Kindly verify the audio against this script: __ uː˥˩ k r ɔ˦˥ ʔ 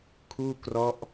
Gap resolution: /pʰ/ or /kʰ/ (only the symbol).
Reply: kʰ